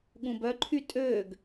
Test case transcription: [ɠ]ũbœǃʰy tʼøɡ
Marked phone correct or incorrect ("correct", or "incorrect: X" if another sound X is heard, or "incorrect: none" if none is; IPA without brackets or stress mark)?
correct